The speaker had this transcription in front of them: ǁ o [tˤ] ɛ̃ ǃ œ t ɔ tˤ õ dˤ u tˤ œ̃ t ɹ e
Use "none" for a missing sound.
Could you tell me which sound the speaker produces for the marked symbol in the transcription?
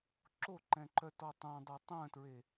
ǃ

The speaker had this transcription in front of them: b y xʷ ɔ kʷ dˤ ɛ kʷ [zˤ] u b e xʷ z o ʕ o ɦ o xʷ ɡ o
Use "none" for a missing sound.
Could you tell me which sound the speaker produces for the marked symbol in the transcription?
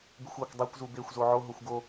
z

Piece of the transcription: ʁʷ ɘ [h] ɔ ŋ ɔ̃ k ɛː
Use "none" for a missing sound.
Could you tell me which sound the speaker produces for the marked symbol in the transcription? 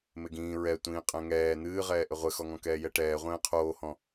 x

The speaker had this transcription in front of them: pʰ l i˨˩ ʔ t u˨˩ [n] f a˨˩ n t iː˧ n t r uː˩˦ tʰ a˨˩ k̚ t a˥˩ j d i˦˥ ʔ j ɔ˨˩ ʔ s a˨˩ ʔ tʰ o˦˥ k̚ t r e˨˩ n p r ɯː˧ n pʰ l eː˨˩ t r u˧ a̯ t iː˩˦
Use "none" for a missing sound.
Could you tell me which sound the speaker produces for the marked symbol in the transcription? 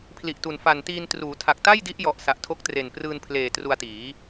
n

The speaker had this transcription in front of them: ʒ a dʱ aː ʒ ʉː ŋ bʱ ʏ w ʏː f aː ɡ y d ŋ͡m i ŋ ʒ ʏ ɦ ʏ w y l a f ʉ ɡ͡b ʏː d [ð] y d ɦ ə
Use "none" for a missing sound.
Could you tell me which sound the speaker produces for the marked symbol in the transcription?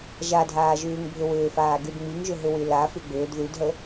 ð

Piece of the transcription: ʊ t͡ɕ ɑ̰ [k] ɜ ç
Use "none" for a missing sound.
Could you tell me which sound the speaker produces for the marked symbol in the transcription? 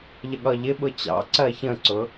ǀ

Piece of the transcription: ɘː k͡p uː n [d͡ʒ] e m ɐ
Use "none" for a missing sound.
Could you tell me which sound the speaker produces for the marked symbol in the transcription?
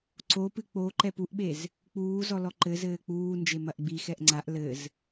d͡ʒ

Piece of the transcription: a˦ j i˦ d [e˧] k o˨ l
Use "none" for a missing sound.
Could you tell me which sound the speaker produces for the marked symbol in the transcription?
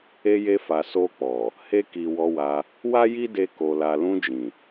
e˧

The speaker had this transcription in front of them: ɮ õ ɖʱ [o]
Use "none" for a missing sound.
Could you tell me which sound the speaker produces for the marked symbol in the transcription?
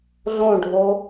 o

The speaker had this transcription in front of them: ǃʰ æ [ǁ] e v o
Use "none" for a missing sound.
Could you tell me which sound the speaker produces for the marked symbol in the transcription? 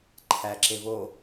ǁ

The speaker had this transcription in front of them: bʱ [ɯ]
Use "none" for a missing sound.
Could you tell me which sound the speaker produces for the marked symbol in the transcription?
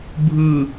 ɯ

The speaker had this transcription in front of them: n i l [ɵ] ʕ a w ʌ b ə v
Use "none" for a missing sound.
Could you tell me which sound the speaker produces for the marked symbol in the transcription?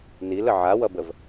ə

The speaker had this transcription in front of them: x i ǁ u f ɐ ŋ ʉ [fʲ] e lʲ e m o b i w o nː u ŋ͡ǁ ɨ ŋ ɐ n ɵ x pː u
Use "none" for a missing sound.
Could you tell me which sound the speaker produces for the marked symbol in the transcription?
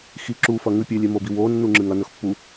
pʲ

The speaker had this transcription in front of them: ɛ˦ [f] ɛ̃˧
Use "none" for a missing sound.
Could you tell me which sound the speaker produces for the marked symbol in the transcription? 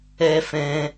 f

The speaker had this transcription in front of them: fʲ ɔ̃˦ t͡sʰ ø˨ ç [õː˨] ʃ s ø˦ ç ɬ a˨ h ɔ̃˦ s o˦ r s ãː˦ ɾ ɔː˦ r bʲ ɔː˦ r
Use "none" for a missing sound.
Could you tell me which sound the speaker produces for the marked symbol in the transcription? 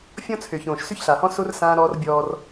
õː˨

